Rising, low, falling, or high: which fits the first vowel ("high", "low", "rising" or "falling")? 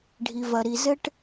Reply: low